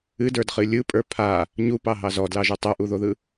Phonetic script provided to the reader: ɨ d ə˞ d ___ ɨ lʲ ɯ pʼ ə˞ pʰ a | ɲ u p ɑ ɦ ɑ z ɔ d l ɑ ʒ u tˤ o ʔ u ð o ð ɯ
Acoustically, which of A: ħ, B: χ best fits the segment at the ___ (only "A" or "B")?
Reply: B